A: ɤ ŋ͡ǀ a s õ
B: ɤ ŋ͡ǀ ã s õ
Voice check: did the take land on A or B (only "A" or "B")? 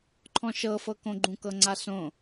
A